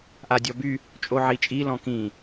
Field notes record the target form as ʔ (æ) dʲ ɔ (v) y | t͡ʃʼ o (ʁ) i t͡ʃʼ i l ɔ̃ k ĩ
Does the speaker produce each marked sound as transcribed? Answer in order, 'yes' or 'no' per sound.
no, no, no

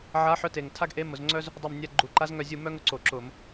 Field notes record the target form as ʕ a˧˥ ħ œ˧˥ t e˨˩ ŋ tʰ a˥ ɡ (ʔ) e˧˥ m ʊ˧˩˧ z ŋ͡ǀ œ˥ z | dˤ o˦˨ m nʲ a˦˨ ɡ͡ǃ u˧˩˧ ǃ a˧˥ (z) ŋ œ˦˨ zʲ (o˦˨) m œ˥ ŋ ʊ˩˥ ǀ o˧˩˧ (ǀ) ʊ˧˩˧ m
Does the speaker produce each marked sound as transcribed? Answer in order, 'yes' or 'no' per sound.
yes, yes, no, no

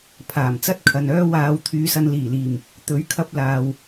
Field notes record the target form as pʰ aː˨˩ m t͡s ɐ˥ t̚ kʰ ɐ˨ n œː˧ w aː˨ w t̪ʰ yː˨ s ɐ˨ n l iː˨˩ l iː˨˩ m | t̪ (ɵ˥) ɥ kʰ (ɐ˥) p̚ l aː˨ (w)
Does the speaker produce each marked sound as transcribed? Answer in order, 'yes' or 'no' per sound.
no, no, yes

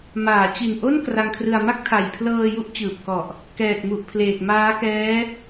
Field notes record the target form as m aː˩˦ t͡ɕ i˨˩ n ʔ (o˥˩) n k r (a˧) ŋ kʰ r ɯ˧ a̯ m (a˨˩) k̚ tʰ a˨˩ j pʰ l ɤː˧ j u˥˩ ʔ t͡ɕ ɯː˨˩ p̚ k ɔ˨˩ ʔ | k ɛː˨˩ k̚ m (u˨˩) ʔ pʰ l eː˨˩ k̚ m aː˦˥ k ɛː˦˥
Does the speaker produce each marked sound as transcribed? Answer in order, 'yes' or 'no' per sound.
yes, yes, no, yes

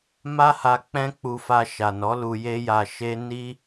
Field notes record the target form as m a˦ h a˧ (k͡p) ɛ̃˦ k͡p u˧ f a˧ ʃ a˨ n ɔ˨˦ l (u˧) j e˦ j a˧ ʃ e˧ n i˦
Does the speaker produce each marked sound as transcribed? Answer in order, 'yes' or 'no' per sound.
yes, yes

